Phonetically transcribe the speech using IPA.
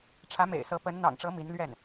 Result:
ʈ͡ʂʰä˧˥mḛ˨˩ɪ̯sɤ˧˥ pə˧˥n n̪ɑ̰˨˩ŋʈ͡ʂɤ˧˥ mi˧˥nlɥɛ˥˩n

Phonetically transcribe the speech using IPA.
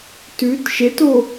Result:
tʉt ʃeto

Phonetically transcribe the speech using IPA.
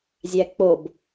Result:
zʲæk͡pob

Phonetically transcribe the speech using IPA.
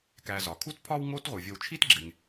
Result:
kæ˨zɒ˩kʰu˥tpʰɒ˥w ŋo˦t ʁu˩vʲo˨wt͡ʃʰi˥tɡ͡ǁe˩ŋ

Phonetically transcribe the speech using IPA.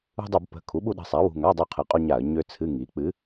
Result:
ṳ˧dˤu˧˩˧b pə̤˩˧˩ kʰu˩˥ɓu˧ɗə̤˩˧˩sˤa˩˥ wṳ˩˧˩ŋa˧˥˧dˤu˧ qʰɨ˩˥qʼu˧ɲa˧˩˧ə̯ ɲø˧ t͡sʰɨ˧˥˧ŋi˩˥ k͡pɨ˩˥

